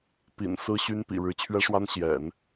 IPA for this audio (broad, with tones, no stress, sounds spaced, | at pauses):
p ḭ˨˩ n s ɹ̩˥ ɕ y˥ n p ḭ˨˩ ɻ ɻ̩˧˥ t͡ɕʰ ɥ ɛ˥ ʂ w a˥ n ɕ j ɛ̰˨˩˦ n